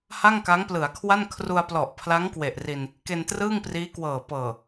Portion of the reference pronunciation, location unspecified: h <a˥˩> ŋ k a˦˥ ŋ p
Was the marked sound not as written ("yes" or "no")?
no